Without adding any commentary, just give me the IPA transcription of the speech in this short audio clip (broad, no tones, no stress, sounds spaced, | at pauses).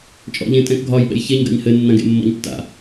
t͡ʃʼ ɔ̰ ʎ ẽ tʼ ɛ̃ k ɡʱ ɒ j ɓ ɛ̰ j ç e ɲ ɡ a̰ ɲ h ɘ nː ã ɡ ḛ mː ɔ̰ ɲ tː a̰